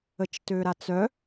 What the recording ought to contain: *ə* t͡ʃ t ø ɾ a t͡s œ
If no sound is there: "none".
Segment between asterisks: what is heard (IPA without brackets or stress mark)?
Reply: ə